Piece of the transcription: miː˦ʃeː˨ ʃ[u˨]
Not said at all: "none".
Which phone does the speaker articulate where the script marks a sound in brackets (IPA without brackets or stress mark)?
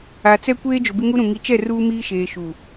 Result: u˨